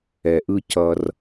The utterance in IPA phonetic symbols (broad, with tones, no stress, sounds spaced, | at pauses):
ɛ˩ ʔ ɯ˨ c ʌ˨ r